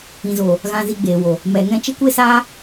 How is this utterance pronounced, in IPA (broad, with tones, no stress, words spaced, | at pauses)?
ĩ˨zoː˨ | ɣã˧zi˧ɡ͡beː˨wo˨ | mɛ˨ŋɛ̃˧t͡ʃe˦ kʷe˦saː˦